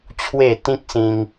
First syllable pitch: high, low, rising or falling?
falling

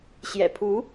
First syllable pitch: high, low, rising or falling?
low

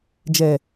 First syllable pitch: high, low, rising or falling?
low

